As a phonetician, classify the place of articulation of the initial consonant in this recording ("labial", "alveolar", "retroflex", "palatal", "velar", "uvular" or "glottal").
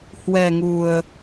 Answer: glottal